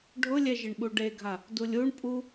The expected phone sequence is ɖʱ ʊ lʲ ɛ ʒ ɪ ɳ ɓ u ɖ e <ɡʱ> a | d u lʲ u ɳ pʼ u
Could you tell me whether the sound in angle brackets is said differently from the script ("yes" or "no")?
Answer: no